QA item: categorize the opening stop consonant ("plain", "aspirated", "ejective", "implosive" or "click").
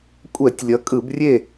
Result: ejective